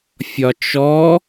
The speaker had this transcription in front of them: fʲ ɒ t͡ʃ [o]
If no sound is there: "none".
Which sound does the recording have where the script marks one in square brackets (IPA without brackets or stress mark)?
ɔ